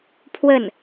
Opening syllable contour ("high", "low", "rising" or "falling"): falling